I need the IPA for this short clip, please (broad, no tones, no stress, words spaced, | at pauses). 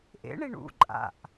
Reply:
ʔḛɳiɳ ṵ ǃʼa̰ʔ